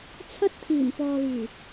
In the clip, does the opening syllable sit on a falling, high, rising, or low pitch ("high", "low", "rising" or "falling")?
high